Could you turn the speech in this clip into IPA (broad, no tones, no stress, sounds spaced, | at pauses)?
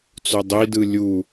t͡s o dˤ i d ɯ lʲ u